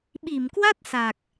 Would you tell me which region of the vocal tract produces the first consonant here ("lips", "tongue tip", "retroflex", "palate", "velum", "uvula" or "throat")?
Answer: lips